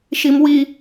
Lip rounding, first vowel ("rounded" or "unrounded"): unrounded